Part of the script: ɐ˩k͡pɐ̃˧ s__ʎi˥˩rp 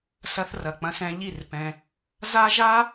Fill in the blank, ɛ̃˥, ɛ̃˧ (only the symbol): ɛ̃˧